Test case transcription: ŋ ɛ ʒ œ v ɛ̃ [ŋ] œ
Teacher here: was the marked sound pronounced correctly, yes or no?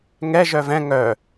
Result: yes